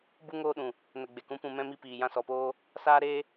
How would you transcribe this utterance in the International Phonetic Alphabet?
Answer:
b u˦ ŋ oː˦ ɗ ũ˨ | n ə˨ ɡ͡b e˨ k ũ˨˦ p ũ˨ m ɛ̃˧ m i˧ p iː˨ j ã˧ s ɔ˨ p oː˦ | s aː˦ ɾ eː˦

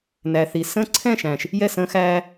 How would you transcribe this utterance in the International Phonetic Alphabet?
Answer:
n æ˨ θ i˨ s ə̃ː˦ ǀʰ ɛ̃˦˨ ʃ æ̃˨ ʃ | j ɛ˦˨ s ə̃ː˦ x æː˦

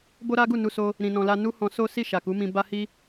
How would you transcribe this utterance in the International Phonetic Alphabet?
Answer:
b o˦ ɾ a˦ ɡ u˦˨ n u˧ s o˧ | ɾ ĩ˧ n ɔ̃˧ l a˦ n u˦ h ɔ̃˧ s o˦ s i˦˨ ʃ a˨ k u˨˦ m ĩ˧ b a˦ h i˦

